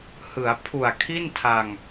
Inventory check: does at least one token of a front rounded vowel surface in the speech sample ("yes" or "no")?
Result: no